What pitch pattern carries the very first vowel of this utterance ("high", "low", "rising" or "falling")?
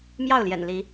falling